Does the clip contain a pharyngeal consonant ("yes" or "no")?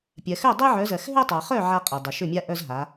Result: yes